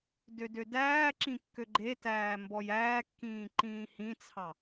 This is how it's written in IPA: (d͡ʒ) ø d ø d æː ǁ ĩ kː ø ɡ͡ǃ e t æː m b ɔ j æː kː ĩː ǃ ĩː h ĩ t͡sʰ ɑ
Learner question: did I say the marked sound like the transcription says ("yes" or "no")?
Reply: no